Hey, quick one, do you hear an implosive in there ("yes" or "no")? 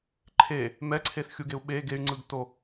yes